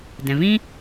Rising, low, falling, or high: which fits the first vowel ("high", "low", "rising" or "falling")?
low